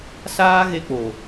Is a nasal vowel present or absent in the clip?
absent